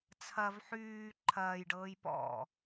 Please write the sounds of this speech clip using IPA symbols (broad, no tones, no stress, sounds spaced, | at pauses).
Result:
t͡sʰ ɐ v ħ yː ǃʰ ɐː j ɖ ɤː j p ɔ̰